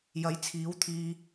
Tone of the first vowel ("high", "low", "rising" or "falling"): rising